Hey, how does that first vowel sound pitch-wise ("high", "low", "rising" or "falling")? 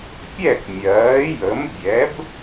falling